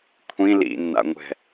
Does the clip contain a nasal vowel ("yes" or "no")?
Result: yes